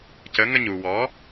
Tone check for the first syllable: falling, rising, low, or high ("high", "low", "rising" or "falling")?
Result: rising